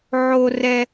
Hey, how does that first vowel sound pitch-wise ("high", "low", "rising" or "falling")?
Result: high